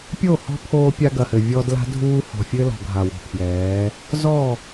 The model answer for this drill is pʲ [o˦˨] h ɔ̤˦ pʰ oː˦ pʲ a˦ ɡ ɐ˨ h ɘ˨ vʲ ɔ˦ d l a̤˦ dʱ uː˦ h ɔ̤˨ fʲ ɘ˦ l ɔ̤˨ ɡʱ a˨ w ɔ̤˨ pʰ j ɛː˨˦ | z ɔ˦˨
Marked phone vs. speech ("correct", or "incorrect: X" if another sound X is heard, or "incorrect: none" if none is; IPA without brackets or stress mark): correct